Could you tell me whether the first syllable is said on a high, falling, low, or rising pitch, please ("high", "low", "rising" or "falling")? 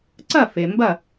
falling